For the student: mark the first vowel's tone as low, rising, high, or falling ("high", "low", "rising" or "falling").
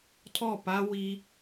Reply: falling